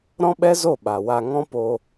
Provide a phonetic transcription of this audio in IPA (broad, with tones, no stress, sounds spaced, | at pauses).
ɾ ɔ̃˦ ɓ ɛ˦ z o˦˨ ɓ a˨ w a˧ ŋ ɔ̃˦ p o˧